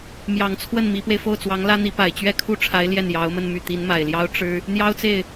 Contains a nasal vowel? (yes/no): no